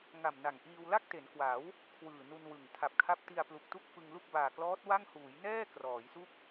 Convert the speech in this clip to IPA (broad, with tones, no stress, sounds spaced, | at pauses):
ŋ a˨˩ m n a˨˩ ŋ ʔ iː˧ w l a˥˩ k̚ t e˩˦ n k w a˩˦ w | kʰ w ɯː˨˩ n u˧ n w ɯ˨˩ ŋ tʰ a˨˩ p̚ kʰ a˦˥ p̚ t i˧ a̯ p l u˨˩ k̚ t u˥˩ k̚ f ɯ˧ ŋ l u˥˩ k̚ b aː˨˩ k l ɔː˦˥ t̚ w a˥˩ ŋ h uː˩˦ j n ɛː˥˩ k r ɔː˩˦ j s u˥˩ k̚